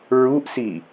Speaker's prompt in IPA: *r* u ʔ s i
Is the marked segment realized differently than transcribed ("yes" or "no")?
yes